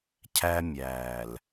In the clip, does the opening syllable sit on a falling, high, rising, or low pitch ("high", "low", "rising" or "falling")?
high